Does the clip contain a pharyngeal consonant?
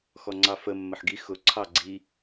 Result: yes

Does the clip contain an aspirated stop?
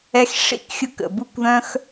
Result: no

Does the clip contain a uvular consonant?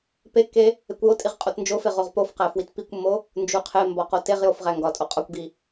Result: yes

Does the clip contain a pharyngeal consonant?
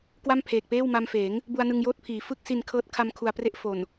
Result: no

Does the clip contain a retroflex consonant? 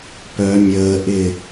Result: no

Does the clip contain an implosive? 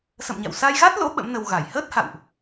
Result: yes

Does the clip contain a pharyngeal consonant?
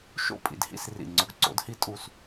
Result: no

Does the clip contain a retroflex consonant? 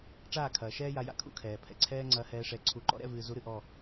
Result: yes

